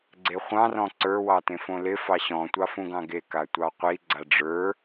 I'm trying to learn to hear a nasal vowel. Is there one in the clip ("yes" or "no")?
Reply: yes